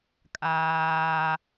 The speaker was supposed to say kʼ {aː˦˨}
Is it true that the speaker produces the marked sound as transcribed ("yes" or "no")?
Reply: no